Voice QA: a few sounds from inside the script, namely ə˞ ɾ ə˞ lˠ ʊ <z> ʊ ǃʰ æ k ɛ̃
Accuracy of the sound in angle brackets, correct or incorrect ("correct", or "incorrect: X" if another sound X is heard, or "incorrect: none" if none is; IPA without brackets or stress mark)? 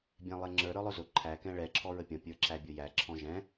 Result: correct